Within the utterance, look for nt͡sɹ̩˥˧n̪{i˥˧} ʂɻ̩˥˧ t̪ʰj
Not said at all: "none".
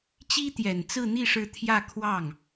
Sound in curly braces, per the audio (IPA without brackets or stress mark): i˥˧